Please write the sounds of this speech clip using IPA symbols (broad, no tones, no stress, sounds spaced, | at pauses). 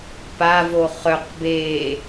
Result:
p a v o χ œ q b eː